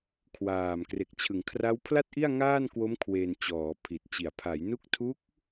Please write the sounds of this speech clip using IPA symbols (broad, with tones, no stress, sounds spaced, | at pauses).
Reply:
kʰ w aː˨˩ m k r e˨˩ k̚ t͡ɕʰ ɯ˩˦ ŋ kʰ r a˦˥ w pʰ l a˥˩ t̚ ʔ i˥˩ a̯ ŋ aː˥˩ n k w o˦˥ m kʰ w e˧ n t͡ɕ ɔː˩˦ pʰ i˨˩ t̚ t͡ɕ i˨˩ a̯ pʰ a˩˦ j n u˦˥ k̚ tʰ u˦˥ k̚